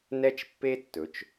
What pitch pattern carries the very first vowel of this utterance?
high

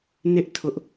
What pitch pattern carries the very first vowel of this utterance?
high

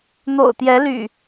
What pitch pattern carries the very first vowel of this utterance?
low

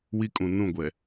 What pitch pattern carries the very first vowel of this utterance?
high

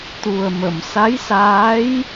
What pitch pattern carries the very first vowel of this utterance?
low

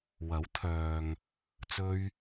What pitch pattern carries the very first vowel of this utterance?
rising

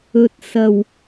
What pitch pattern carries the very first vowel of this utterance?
low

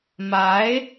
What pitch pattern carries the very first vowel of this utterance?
rising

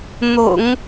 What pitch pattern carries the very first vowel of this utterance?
low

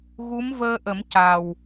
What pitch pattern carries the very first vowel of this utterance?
rising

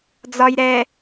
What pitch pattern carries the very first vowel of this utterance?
low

